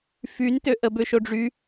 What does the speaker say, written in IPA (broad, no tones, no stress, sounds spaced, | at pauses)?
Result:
f y n t ø ʔ ə b ø ʃ o ɖ͡ʐ y